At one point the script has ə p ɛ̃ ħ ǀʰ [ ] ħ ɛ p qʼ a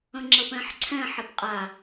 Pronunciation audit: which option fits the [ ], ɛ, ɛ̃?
ɛ̃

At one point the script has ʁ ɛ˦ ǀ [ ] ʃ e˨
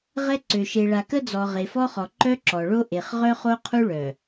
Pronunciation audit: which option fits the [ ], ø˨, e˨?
ø˨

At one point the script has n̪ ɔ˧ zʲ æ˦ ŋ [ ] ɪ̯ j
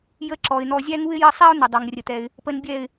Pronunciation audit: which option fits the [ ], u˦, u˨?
u˦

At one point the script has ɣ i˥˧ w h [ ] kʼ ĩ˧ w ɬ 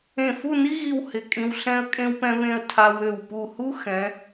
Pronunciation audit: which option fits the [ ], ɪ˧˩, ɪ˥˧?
ɪ˧˩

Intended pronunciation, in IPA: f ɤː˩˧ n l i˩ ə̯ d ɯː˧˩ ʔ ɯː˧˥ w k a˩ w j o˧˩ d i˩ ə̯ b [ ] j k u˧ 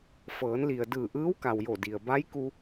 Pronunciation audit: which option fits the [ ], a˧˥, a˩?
a˧˥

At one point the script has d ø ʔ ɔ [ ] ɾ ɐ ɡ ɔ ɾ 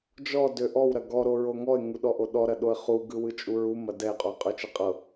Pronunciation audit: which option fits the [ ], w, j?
w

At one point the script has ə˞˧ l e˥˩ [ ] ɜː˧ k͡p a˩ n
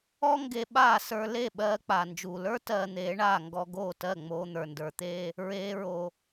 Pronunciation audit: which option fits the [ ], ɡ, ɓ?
ɓ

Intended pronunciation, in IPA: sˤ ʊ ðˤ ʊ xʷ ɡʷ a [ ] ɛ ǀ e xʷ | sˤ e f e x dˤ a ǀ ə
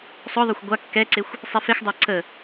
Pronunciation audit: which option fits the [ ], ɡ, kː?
kː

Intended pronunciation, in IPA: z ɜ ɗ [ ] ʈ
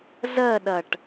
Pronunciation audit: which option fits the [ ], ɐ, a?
ɐ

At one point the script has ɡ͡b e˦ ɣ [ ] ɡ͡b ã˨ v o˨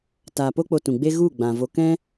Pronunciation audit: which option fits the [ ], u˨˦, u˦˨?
u˦˨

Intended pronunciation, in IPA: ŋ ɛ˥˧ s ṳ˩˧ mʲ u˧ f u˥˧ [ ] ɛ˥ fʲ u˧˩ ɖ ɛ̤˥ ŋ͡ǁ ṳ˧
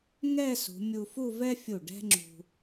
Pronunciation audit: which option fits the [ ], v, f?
v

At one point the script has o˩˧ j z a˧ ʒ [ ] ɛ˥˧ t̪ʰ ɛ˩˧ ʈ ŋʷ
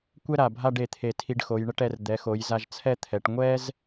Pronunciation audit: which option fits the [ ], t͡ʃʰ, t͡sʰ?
t͡sʰ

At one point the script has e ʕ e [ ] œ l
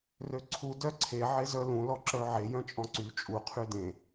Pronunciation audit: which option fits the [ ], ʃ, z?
z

